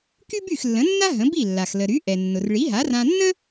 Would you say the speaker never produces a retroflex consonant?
no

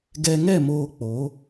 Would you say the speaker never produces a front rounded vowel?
yes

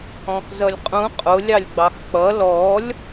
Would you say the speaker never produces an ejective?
no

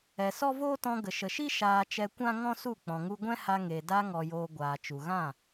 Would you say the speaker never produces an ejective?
yes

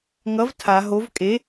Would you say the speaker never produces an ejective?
no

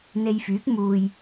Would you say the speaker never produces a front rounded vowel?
no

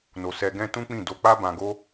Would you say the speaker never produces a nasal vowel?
no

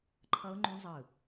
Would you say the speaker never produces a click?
no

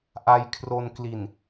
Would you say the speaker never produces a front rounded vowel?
yes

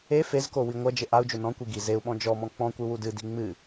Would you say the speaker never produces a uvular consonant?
yes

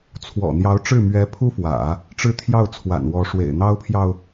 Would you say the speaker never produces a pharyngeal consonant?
yes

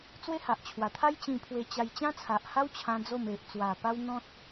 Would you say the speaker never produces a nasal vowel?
no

